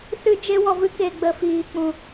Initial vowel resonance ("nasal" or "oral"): oral